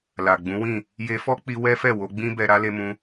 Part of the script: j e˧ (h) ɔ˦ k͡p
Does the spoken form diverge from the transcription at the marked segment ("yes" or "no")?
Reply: yes